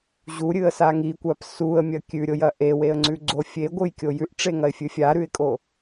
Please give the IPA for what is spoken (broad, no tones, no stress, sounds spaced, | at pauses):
ʑ u ɾʲ ɨ ə̯ s a ŋ i kʷ a p s u ə̯ mʲ ɐ kʲ ʉ ɾʲ o j ɐ ʔ e w e ə̯ ŋ͡ǀ ʉ ɡ͡ǀ o fʲ e ɡʷ ɨ j kʲ o j ʉ ʔ ʈ͡ʂ e ŋ ɐ ɪ̯ fʲ ɨ fʲ a ɾ ʉ ɪ̯ kʼ o